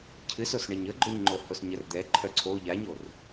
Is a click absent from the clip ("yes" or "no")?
no